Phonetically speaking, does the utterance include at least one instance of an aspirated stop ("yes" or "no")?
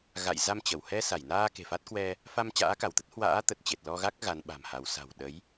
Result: no